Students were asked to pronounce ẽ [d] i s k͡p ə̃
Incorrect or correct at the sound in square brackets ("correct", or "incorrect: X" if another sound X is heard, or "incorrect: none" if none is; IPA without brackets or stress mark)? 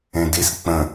correct